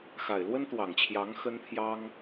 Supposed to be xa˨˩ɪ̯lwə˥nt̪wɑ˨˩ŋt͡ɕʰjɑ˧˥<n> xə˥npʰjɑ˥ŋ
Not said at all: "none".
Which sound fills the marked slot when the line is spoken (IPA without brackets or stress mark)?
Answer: ŋ